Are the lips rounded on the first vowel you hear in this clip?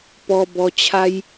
yes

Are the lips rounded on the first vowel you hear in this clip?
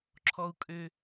yes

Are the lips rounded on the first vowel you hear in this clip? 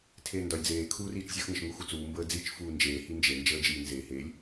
no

